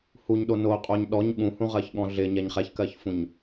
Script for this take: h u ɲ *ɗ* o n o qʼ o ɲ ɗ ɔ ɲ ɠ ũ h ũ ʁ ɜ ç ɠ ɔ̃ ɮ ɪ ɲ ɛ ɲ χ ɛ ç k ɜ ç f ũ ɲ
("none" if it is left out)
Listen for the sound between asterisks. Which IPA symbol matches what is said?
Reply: ɗ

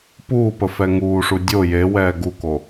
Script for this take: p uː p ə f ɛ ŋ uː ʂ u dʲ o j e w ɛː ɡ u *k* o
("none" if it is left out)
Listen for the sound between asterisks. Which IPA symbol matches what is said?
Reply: k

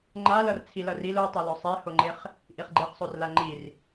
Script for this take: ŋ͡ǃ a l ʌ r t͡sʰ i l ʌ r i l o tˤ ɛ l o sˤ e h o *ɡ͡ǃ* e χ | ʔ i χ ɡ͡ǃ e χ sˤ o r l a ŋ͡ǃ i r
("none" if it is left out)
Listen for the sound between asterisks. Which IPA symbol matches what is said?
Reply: ŋ͡ǃ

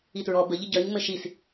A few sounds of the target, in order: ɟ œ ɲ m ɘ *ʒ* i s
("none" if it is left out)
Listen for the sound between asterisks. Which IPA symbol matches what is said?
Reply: ʃ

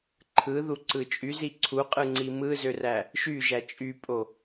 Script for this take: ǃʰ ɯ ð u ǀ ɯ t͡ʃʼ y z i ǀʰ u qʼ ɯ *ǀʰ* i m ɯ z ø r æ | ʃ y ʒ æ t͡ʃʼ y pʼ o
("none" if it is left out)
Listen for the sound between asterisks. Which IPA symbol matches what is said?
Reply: ŋ͡ǀ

